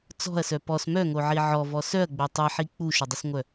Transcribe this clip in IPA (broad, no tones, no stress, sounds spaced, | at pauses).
t͡s ɔ̤ ɐ̯ s œ p ɔ s m œ ŋ o ʕ i ʕ ɔ v ɔ s œ ɐ̯ ɡ͡b o tˤ i ħ i k͡p u ʃ ʏ dˤ ʏ s ŋʷ œ